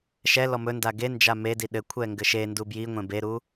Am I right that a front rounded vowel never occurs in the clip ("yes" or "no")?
yes